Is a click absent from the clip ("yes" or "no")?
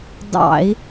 yes